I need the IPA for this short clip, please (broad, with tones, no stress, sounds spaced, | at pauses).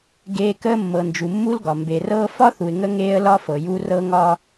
ɡ eː˦ k əː˦ mː ɤ˨ n d͡ʒ u˨ mː u˦ l ɡ ɒ˨ m b e˨ r ɤː˦ f ɒ˦ θ u˨ ɪ̯ ŋ ə˦ ŋ eː˦ ə̯ l ɒ˦ f ɤ˨ j u˦ r ɤ˦ ŋ ɒ˦